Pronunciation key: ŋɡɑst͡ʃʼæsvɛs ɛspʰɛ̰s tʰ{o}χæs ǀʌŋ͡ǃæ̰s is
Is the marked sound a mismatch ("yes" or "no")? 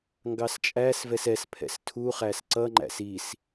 yes